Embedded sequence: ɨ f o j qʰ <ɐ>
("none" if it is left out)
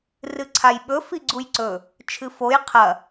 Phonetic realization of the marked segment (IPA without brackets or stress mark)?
ɐ